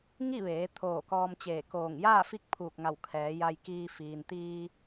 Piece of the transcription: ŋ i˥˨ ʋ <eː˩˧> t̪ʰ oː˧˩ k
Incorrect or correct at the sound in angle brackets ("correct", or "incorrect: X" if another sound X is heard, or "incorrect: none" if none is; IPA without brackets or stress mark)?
correct